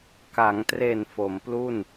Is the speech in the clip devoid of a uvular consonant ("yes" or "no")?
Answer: yes